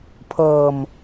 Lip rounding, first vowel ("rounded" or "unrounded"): unrounded